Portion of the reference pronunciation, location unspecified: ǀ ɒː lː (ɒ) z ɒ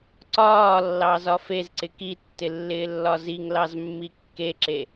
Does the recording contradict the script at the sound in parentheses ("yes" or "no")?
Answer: yes